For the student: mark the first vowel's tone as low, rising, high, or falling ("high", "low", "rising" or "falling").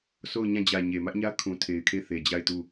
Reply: falling